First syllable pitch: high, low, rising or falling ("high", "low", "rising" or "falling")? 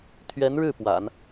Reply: rising